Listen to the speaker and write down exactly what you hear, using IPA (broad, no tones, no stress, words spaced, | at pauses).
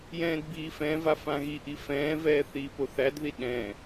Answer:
jɛ̃ːdbiːfɛ̃va fãɣiʔi fɛ̃ːvɛː θiːpoθædði ɗɛ̃